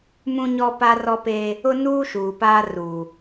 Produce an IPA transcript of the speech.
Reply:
m ũ˦ ɲ ɔ˦ p a˦ r ɔ˦ p eː˦ | ʊ˦ n uː˦ ʃ uː˨ p aː˦ r uː˨

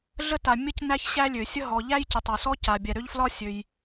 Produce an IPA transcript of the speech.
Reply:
ɮ ə˥ t a˩ mʲ ə˥ c n æ˥ ç ɕ æ˥ lʲ ø˩ sʲ ə˥ ɦ ɔ˩ ʎ æ˥ j c ə˩ tˤ ɒ˩ s ɔ˥ c a˩ bʲ ɛ˩ ɾ ø˥ ʎ f l ɒ˥ sʲ ø˩ j

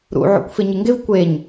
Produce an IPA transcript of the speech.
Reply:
ɾ ṵ ʕ o̰ kʷ f ɪ ɲ ɪ ŋ ɡ ɪ v kʷ e ɲ

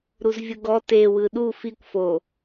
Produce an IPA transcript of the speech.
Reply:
ɾ u z vʲ ɯ ɡ ɔ t e w ɯ ɗ u f i kʷ f o

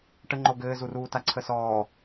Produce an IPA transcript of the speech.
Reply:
ʈ ə ŋ͡ǃ o ɡ ɘː z u r uː t a ǀʰ ə s ɔː

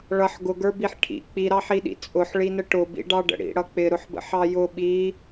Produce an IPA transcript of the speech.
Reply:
ɭ ʌ ħ ɡ ʊ ɡ ə˞ b i ħ ʈʰ ḭ k͡p i ɾ ɑ ħ i ɗ ḭ t͡sʼ ʊ ħ ɭ i n ə ʈ ʊ b ḭ ɖ ɑ ɖ ə̰ ɽ ḭ ɽ ʌ k͡p ɪ ɾ ʊ ħ b ə̰ ħ ɑ j ʊ ɓ i

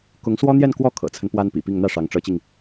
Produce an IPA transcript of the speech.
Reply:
k ʊ˧˥ ŋ s w ɔ˥ n̪ j ɛ˥˧ n k w ɔ˥˩ kʰ ɤ̰˨˩ t͡sʰ ə˦ n p w a˥ n p ḭ˨˩ p i˥˧ ŋ n̪ ä˥˩ ʂ ɑ˧˥ ŋ ʈ͡ʂ ɤ˧˥ t͡ɕ i˧ ŋ

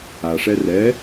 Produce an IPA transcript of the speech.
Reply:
a ʂ ɛ r ɛ

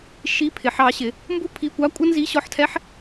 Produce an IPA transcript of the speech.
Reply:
ʃ i˧˥˧ pʰ ɪ˩˧ ħ ɑ˩˧ ɕ ɪ˩˧ | m b u˥ pʰ i˧˥˧ kʷ ɑ˧˥˧ kʷʼ ʌ˥ n z i˧˥˧ ɕ ɔ˧˥˧ ħ tʰ ɛ˧˥˧ ħ

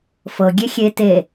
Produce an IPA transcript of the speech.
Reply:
f ɤ ɡʲ e xʲ e t e

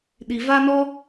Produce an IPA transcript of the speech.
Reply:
ɗ i˨ v a˦ n ɔ˦

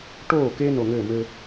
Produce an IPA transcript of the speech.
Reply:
ʈ oː˦˨ k e˦ n o˨ ŋ ɘː˦˨ m ɘː˦

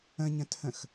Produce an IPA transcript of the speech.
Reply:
ə̃ ɲ ə̃ t h ə̃ x

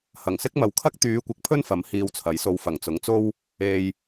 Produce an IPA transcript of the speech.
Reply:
h ɐ˨˩ ŋ s ɪ˥ k̚ m ɐ˨˧ w kʰ ɐ˥ k̚ t̪ yː˨˧ kʷ ɪ˨˥ k̚ pʰ ɵ˥ n f ɐ˨˥ m h iː˧ w t͡sʰ ɐ˨˥ j s o˧ w f ɐ˨˩ ŋ t͡s ʊ˨˥ ŋ t͡s o˥ w | e˨ j

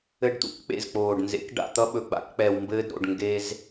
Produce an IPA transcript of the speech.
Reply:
ɘ˧ ɖ t̪ ṵ˨ k k͡p ḛ˦˨ z k͡p oː˨ ɖ n z ḛ˨˦ k ɖ a̰˨ t̪ ʌ˧ ɓ ɵ˨ ɡ͡b a̰˧ k k͡p ɛ˨ w m b ɘː˧ d ɾ o̰˨ ɖ ŋ ɡ e˧ z

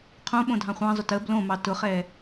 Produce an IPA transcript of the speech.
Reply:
qʰ õ ɓ õ dʱ ɑ̃ χʷ ɑ̃ zˤ ʊ t ə b l õ m ɑ t ʊ χ ɛ

